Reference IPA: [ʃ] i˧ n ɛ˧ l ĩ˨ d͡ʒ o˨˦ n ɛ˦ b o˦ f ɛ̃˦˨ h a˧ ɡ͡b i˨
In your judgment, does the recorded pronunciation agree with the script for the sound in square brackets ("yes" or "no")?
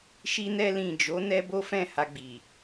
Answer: yes